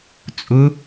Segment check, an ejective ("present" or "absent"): present